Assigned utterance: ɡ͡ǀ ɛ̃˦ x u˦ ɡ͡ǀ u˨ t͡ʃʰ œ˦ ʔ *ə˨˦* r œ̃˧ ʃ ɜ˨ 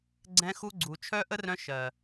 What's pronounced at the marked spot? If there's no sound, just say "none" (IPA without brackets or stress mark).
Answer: ə˦